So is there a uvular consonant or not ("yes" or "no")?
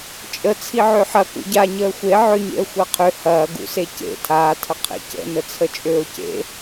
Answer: yes